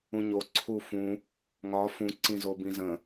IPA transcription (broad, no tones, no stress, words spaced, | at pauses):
ũɲo ǀʰufũ | ŋɒ fũ ǀĩzobĩzə̃